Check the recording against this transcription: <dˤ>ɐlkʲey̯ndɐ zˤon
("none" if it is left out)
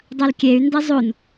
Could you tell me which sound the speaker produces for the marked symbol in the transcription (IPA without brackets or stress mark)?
dˤ